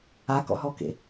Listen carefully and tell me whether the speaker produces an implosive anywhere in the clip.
no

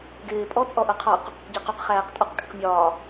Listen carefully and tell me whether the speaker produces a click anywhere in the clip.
no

